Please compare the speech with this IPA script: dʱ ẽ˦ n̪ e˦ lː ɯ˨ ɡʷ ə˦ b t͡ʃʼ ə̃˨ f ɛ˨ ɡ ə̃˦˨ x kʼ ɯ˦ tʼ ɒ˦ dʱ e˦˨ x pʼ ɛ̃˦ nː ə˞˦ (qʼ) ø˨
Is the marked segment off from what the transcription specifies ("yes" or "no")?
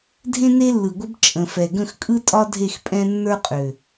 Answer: no